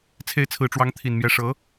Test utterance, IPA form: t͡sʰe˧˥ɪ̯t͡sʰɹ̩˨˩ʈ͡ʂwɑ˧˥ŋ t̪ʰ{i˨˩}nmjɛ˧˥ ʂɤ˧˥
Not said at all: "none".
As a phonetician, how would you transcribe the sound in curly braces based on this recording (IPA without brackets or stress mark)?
i˨˩